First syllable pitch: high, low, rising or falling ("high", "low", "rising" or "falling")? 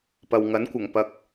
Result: low